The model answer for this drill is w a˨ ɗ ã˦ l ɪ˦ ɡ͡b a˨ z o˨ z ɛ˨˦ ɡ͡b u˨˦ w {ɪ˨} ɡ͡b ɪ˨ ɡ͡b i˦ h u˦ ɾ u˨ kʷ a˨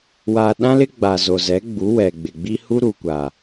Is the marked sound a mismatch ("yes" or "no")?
yes